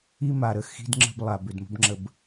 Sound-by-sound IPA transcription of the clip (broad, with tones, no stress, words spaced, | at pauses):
i˦ma˨ ɾə˨xi̤˦dŋ͡ǁə̤˦b lˠa˨bʏ˨dmə̤˦bŋ͡ǁə˦˨b